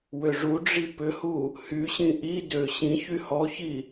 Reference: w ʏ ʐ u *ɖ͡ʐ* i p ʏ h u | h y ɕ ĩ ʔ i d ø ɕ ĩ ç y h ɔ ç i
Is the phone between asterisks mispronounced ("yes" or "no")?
no